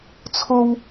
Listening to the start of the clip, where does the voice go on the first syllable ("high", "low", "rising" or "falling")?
high